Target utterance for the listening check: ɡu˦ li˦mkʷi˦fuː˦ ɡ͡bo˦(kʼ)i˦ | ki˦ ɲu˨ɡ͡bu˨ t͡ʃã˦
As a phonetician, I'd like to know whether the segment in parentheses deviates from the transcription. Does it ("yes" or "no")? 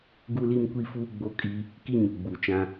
no